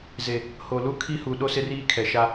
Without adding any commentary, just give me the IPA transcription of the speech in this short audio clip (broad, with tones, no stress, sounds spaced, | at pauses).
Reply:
z e˨ | h o˨ l u˦ kʰ i˦ h u˨ ɗ o˦ s ɪ˦ r iː˦ kʰ ɛ˨ ʃ a˦